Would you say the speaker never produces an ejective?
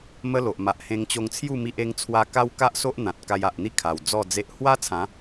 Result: yes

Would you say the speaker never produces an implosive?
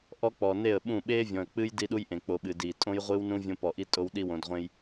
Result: no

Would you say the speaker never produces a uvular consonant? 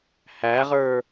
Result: no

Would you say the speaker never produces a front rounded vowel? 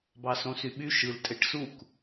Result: no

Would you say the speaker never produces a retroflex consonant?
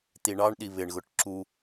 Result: no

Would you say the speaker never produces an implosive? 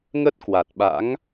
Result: no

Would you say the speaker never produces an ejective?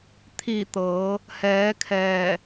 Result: yes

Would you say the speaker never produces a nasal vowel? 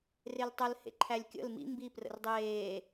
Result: yes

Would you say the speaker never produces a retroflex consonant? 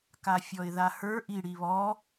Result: no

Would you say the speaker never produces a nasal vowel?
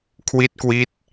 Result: yes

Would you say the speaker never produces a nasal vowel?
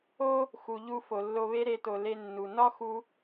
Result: yes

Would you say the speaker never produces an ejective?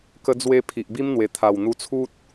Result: yes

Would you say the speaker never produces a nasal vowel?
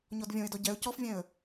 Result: no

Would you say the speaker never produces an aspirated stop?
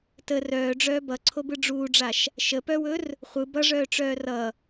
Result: no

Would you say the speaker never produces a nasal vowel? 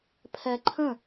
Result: no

